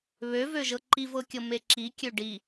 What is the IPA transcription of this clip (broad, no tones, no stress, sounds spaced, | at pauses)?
β ø v ø ʒ ɤ ǃ i v ɤ kʲ ɤ m e ǁ i kʲ ø ɖ i